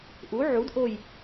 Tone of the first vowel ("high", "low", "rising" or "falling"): rising